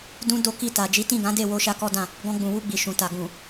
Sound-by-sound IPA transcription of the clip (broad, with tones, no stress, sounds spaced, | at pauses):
d ũ˦ d o˦ k i˦˨ t a˨ d͡ʒ i˨˦ t ĩ˦˨ ɡ ã˨˦ d e˦˨ w o˧ ʃ a˧ k ɔ˦ d ã˦˨ | ɡ ɔ̃˧ ɡ͡b ũ˨ w u˧ ɡ͡b i˨ ʃ ũ˨ t a˨ ɡ ũ˨